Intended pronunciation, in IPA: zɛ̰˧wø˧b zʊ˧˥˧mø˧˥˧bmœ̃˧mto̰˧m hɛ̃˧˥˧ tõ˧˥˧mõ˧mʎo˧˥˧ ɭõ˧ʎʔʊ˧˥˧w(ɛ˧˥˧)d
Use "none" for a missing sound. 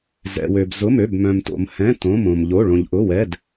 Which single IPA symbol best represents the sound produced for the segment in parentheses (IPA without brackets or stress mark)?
ɛ˧˥˧